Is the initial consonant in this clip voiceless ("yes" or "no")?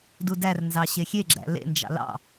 no